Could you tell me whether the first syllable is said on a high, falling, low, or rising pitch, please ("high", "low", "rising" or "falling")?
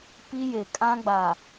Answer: high